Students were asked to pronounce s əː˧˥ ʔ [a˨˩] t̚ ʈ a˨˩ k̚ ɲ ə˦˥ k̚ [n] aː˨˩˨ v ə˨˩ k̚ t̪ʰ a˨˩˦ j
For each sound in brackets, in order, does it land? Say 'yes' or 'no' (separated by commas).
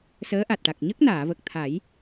yes, yes